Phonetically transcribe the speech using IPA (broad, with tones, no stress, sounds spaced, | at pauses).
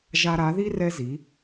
ʒ a˧ ɾ a˨˦ ð i˦ r ɛ˦ z i˨˦